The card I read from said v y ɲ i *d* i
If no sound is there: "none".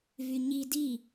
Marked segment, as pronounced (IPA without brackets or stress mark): d